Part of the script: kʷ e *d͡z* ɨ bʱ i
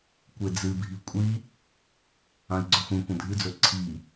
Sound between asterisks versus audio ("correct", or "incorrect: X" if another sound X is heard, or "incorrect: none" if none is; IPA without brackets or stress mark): correct